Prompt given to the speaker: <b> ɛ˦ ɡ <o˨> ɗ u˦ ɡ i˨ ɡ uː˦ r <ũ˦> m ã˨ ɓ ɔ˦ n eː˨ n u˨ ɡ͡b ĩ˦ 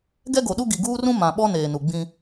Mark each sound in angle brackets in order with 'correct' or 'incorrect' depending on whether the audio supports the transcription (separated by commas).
incorrect, correct, correct